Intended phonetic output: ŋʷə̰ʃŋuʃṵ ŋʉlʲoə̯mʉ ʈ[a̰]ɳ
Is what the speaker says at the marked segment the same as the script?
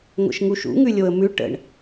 no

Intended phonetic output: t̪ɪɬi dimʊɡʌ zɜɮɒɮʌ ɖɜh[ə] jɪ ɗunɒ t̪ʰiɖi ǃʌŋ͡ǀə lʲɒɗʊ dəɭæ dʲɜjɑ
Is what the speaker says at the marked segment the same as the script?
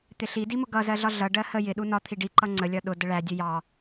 yes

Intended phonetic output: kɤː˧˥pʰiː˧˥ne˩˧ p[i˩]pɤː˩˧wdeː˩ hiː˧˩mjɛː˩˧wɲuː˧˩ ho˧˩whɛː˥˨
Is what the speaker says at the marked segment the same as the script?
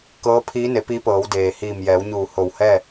no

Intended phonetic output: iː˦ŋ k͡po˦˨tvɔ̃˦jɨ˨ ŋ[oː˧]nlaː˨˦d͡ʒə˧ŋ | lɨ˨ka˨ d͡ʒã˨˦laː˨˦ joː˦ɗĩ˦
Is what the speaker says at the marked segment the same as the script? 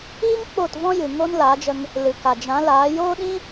no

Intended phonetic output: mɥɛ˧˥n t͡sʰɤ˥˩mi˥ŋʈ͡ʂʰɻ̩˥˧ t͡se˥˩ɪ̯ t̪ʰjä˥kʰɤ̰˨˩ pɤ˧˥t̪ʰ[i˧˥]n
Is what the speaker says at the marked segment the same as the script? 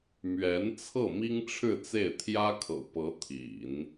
no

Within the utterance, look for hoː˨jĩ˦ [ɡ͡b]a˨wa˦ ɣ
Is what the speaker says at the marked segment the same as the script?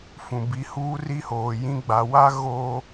yes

